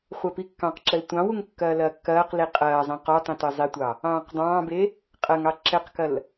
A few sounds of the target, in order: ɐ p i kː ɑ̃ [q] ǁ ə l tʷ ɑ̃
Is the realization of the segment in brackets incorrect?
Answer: no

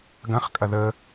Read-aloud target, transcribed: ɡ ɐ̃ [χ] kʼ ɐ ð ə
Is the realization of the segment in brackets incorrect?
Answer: no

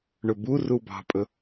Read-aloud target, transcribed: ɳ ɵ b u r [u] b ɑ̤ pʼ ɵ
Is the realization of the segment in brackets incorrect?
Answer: no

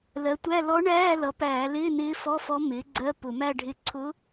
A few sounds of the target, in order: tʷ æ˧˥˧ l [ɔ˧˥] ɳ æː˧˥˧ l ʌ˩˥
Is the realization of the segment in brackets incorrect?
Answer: no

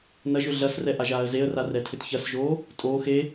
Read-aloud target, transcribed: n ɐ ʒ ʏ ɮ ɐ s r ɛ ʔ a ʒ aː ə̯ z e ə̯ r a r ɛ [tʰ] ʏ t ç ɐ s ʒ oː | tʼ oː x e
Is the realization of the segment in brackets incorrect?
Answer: no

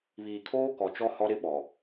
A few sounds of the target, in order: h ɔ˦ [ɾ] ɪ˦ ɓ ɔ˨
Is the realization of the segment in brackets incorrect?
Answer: no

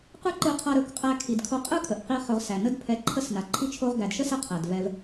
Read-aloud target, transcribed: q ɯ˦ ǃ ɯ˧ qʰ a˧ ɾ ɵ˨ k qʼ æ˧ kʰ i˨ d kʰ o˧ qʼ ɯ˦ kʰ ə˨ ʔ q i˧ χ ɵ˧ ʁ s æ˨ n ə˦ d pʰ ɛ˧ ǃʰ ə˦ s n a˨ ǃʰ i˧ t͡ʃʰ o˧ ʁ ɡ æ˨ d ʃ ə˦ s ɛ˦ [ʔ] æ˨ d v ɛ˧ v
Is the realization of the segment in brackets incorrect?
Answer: yes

